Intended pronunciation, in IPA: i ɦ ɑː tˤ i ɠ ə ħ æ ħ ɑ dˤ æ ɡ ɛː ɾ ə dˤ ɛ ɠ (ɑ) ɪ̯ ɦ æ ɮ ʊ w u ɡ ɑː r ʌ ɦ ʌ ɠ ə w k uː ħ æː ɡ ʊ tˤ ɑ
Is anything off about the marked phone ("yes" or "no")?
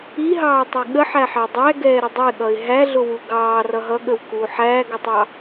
yes